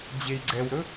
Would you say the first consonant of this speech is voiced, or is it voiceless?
voiced